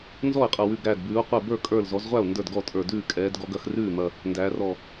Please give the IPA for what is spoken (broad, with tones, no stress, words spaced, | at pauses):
nzɔ˥˩e̯qʼɐ˧˩wʉ˧˩ɡ ɾæː˧˩dbʉː˩˧o̯qʷɛ˧˩ bə˞˥˩kʼə˞˧˩lzɔ˩˧zʁʷæ˥˩o̯ ndə˞˥˩dɡɔ˥˩tʼə˞˧˩dʉː˥˩ kʼɛː˩˧d ɡɔ˩˧ɡɐ˩˧xrʉː˥˩mɐ˧˩ | ndæː˩˧rɔ˧˩